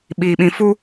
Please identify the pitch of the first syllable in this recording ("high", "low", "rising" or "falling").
low